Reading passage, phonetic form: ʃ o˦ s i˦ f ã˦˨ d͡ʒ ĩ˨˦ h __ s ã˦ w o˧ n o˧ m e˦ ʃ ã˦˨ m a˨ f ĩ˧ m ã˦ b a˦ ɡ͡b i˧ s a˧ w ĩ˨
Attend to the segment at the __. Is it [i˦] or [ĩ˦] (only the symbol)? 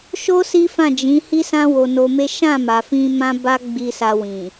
i˦